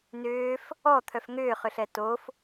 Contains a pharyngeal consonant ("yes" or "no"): no